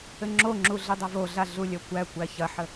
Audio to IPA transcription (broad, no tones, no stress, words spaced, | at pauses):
ɘŋ͡ǁoŋ͡ǁu ɮɘdˤɐvoɮa ɮulʲɐkʷækʷæ çɐħə